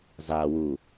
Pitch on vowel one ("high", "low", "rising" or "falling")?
low